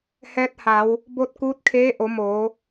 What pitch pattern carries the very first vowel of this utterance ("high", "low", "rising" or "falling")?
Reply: rising